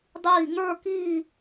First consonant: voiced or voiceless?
voiced